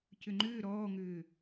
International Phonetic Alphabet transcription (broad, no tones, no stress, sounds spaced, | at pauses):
c ʏ ŋ͡ǃ ʏː ɾ ɔː ŋ ʏː